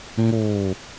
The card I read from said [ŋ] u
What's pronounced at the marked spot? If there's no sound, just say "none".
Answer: ŋ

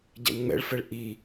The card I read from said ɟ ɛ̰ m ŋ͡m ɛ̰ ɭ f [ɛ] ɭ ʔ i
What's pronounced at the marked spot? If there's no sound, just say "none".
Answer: ɛ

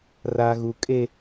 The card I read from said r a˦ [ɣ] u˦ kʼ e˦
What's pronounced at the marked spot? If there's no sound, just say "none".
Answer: ɣ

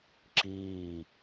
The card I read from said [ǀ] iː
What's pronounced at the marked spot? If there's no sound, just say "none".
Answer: ǁ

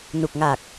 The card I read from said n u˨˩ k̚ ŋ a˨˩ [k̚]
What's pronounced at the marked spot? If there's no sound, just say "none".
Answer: k̚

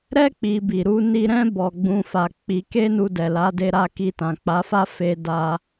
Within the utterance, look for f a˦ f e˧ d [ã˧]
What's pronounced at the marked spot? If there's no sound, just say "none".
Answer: a˧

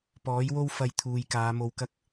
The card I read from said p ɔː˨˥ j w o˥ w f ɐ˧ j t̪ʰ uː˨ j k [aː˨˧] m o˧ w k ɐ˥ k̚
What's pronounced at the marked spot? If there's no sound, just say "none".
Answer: aː˨˧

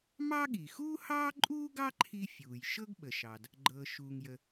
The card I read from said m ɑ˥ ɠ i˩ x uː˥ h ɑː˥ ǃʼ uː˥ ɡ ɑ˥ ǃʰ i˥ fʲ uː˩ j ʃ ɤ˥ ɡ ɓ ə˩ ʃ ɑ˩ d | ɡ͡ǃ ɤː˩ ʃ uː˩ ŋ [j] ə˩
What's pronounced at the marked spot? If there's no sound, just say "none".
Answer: j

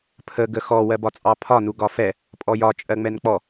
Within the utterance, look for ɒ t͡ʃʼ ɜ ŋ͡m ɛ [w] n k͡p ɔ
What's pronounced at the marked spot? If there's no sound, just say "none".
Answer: none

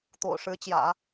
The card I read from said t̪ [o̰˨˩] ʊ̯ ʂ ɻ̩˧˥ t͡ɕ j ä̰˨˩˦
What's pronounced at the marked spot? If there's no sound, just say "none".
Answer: o̰˨˩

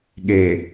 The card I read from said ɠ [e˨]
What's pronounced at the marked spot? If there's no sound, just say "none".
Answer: e˨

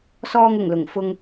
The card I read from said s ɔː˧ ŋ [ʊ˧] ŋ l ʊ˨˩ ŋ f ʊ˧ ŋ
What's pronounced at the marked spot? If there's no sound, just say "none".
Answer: ʊ˨˩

